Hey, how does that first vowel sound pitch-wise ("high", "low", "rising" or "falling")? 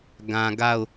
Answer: low